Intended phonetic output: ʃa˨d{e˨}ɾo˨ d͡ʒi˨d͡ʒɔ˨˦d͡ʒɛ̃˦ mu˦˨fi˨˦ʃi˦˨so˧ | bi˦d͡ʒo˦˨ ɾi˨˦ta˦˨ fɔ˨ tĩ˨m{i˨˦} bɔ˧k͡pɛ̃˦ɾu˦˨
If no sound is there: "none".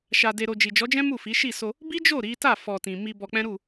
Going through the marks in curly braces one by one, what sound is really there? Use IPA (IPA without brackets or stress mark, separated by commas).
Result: e˨, i˧